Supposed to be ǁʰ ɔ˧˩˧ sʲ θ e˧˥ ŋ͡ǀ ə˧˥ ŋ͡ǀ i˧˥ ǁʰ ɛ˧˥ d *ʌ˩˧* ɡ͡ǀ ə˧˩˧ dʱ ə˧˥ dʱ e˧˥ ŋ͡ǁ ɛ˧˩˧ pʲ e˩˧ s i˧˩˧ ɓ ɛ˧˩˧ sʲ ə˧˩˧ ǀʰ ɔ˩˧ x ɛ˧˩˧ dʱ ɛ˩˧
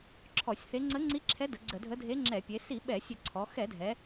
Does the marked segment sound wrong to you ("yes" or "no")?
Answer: yes